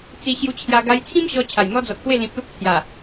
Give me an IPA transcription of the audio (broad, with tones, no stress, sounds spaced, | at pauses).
t͡s i˧ ɕ j u˧ t͡ɕʰ j a˧ ɡ a˧ j t͡sʰ ĩ˦ m ɕ ɔ˧ t͡ɕʰ a˨˩ j n̪ ɔ˦ d͡z ɔ˨ t̚ k w e˥˧ l ĩ˨ p̚ l u˦ k̚ t͡sʰ j a˨˩